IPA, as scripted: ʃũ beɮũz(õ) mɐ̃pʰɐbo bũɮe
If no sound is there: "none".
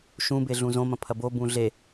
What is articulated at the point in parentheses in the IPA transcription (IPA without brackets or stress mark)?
õ